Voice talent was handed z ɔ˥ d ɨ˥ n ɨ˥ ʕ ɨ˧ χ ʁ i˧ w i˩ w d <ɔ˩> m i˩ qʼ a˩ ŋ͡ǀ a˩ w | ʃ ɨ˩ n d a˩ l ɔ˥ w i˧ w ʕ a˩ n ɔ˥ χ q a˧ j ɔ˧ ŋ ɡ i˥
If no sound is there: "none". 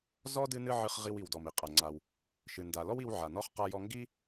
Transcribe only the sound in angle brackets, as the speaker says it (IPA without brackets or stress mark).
ɔ˩